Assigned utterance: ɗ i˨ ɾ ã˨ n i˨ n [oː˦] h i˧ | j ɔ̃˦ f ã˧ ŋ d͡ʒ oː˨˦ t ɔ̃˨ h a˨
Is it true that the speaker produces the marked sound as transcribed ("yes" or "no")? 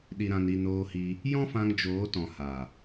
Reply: no